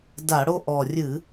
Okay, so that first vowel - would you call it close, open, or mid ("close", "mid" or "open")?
open